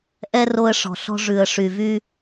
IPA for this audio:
ʔ ɛ˦ r o˧ ə̯ ʂ ɔ̤˨ ɬ ɔ̤˧ ʐ ʉ˨ ə̯ ʂ y˨ v y˧

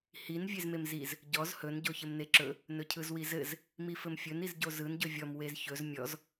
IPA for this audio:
h i n vʲ e z m e m z i z | ɟ ɔ z h ɵ n ɟ o ç ɘ m n e ǁ ɵ | n ɵ cʰ ɯ z w i z ɘ z | m i f ɘ m fʲ ɵ n i z ɟ o z ɯ n ɟ ɵ vʲ ɔ m w e z ç ɵ z mʲ ɔ z

